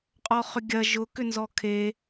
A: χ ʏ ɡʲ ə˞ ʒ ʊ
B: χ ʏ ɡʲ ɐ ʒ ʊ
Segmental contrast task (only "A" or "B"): B